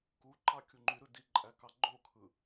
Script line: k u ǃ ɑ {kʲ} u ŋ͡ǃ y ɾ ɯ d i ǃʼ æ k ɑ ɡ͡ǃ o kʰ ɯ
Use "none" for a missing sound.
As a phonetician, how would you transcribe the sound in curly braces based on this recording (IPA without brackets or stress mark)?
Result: kʲ